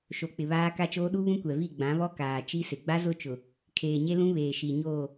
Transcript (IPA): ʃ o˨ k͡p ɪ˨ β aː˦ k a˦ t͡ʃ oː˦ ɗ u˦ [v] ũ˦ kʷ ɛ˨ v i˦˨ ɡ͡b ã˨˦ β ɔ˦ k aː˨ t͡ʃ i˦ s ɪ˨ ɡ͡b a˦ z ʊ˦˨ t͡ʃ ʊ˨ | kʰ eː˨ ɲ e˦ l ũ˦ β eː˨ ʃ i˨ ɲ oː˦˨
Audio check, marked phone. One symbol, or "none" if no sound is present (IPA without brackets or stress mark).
β